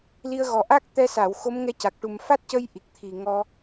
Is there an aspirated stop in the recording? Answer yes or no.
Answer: yes